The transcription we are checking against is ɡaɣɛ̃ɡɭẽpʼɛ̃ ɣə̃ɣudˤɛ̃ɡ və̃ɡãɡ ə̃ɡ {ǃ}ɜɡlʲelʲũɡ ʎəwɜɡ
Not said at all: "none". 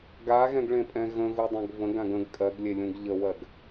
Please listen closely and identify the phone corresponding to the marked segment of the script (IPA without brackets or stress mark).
kʼ